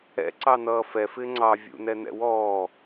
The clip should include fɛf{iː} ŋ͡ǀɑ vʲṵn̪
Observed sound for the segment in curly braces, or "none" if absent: ɪː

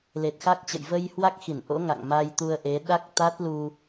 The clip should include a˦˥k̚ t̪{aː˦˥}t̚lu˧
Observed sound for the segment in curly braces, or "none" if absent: a˦˥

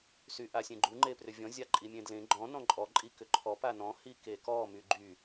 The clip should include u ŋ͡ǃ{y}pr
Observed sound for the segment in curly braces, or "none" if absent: e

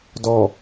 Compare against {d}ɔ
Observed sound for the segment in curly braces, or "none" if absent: d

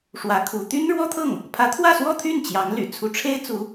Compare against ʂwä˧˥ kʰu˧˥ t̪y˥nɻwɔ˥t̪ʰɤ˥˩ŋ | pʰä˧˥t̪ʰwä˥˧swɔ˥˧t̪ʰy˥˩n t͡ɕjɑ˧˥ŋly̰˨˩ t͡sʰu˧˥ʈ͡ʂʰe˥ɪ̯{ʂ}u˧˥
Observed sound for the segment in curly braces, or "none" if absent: t͡s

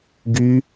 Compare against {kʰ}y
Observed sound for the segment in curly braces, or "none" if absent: ɡ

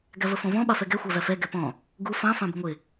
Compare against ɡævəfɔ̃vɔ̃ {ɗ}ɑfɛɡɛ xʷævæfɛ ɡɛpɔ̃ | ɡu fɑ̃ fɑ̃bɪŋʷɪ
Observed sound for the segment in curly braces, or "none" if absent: ɓ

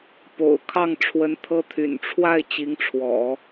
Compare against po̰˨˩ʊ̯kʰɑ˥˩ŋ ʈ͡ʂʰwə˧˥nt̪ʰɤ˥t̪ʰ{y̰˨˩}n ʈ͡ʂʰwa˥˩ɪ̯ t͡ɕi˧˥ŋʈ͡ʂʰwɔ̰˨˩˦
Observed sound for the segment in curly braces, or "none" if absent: y̰˨˩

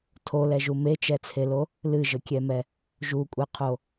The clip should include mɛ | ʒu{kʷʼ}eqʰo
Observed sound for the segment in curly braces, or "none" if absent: kʷʼ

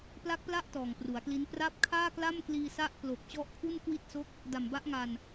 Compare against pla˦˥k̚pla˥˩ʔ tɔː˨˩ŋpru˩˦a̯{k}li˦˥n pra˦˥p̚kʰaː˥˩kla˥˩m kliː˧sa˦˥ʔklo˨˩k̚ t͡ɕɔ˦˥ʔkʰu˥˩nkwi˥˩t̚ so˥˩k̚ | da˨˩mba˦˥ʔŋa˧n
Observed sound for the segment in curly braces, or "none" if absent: k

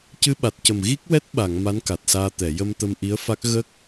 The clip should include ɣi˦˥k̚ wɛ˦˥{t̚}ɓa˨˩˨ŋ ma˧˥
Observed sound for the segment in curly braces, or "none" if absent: t̚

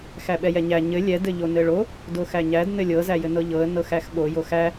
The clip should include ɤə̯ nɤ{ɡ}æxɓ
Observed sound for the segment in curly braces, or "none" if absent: x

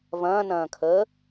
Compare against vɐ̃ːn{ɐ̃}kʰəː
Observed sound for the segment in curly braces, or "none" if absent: ɐ̃ː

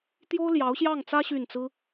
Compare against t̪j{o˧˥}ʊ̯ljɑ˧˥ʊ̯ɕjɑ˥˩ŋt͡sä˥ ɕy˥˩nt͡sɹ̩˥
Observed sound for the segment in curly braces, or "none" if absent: o˥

